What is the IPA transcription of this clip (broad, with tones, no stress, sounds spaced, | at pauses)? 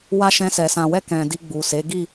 w a˦ ʃ ɛ̃˧ s ɛ˨ s ã˨ w ɛ˧ k ɛ̃˨ d i˧ ɡ͡b u˨ s e˨˦ ɡ i˦˨